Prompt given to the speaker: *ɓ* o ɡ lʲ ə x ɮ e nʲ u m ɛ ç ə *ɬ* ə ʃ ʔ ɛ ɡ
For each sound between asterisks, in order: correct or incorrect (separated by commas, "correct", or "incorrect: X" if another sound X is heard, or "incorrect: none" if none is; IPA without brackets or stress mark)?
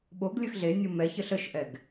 correct, correct